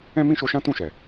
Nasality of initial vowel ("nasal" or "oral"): nasal